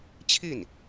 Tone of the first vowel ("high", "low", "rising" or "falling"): falling